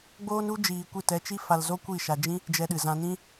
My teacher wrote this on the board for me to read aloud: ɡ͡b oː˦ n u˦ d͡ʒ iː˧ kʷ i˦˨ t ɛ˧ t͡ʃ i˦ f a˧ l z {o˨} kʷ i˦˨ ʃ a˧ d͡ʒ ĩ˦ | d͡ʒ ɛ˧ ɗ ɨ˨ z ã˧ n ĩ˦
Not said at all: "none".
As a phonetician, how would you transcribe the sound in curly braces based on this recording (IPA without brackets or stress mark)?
o˦